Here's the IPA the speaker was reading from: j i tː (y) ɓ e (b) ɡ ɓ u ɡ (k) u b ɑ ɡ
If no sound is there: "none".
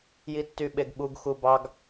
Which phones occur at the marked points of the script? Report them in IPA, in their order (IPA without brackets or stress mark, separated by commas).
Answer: y, none, x